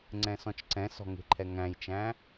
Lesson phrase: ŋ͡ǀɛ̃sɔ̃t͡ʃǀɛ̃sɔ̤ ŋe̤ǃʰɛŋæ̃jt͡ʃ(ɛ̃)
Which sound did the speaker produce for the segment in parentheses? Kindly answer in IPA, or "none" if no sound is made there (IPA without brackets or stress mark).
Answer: æ̃